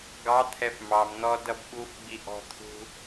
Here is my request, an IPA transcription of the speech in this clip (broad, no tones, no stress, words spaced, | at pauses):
ɡɑt̪ʰɛf mɑmn̪ɔ dʌbɓufɡ͡bi ʔɔ̤t̪ʰṳ